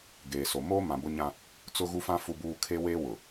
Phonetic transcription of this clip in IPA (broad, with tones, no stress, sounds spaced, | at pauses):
ɡ eː˨ s o˨ m oː˦ m ã˨ b ʊ˦ ɲ ã˦ | t͡s ʊ˦ ɣ u˦ f ã˦ f u˨ b uː˨ kʰ e˦ w eː˦ w ʊ˨